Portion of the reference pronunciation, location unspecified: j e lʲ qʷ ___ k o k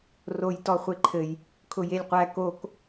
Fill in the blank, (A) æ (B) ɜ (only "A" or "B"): A